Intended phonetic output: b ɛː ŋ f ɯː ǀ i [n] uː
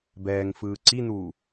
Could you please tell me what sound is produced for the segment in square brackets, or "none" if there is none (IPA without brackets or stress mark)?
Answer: n